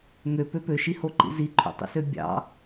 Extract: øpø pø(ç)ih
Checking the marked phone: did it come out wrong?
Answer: yes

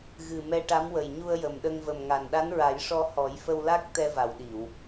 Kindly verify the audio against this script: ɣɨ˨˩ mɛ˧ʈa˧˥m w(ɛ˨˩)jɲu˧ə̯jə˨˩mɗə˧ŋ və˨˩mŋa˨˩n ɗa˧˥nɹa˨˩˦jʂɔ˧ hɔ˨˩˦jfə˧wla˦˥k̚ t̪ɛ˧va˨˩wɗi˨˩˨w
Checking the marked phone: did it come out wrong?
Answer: yes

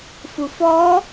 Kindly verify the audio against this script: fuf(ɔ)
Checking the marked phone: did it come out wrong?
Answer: no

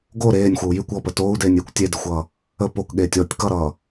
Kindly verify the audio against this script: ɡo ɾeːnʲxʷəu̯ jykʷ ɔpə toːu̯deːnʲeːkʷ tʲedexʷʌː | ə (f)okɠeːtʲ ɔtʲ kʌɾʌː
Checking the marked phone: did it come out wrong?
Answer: yes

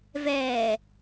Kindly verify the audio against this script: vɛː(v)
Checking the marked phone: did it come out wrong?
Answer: yes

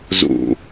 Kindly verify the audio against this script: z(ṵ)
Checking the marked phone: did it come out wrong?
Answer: no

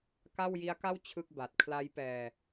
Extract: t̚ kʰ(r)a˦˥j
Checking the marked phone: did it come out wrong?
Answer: yes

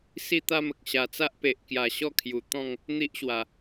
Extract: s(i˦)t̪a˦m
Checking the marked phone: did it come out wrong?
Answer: yes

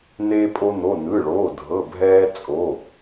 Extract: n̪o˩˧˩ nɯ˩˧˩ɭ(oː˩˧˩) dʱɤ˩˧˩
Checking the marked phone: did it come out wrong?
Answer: no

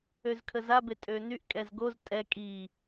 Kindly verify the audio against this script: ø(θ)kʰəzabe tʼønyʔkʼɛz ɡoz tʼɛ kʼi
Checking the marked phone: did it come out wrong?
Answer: yes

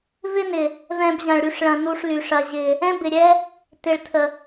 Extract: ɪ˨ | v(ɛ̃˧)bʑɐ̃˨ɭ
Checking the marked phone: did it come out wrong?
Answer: no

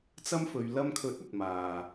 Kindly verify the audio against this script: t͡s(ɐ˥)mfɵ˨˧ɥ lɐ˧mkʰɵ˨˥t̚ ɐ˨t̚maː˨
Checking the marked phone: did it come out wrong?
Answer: no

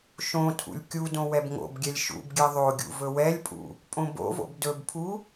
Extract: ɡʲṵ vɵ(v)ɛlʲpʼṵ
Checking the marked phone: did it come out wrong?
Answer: yes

